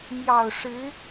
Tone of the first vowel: low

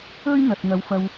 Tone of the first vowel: high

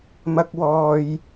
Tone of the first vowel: high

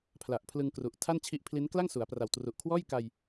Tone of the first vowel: low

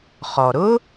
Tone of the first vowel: low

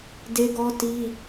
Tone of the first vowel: high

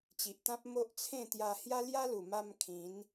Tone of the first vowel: low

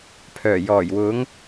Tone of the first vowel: low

